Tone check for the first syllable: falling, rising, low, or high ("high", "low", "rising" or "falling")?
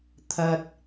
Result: high